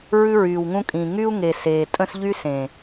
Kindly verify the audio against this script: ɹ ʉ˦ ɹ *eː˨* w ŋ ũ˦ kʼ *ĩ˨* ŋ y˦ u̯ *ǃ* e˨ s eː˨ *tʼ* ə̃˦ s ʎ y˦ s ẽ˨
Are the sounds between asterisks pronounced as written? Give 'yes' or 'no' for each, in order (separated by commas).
no, yes, no, yes